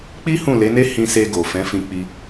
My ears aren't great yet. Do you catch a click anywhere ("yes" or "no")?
no